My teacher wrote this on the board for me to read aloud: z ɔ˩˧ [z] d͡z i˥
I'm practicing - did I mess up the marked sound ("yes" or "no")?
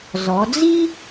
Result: yes